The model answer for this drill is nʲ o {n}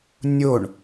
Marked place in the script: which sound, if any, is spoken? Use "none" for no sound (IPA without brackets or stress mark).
ɳ